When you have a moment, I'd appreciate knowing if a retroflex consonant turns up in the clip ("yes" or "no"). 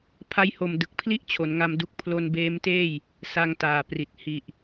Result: no